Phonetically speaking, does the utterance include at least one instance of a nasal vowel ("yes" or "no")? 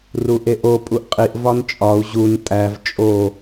no